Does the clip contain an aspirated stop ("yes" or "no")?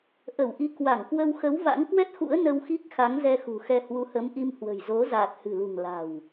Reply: no